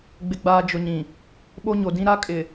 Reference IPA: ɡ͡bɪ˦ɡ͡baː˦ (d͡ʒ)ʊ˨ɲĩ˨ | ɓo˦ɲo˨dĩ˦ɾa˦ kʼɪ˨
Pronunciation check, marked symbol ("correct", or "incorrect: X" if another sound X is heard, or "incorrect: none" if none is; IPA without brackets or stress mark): correct